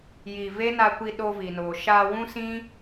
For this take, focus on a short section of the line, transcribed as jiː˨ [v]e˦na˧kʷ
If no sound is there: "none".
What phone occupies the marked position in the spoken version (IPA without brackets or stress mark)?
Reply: v